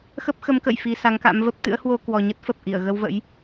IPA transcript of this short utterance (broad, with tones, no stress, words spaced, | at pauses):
xə˦˥p̚xə˨˦mkə̰˧˨j fi˧ sa˨˦ŋka̰˧˥mvə˦˥p̚ t̪ɨ̰˧˥ə̯hwo˧ kwɔ˨˩ɲə˦˥t̚fə˨˩p̚ ʔi˧˩ə̯ ɣə˧wvə̰˧˥j